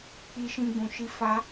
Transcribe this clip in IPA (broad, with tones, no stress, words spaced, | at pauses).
k͡pi˧ʃĩ˧ɡ͡bũ˨ʃi˧ fa˦